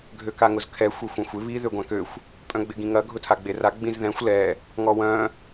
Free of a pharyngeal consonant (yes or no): yes